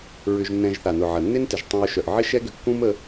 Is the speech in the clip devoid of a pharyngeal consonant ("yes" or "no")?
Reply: no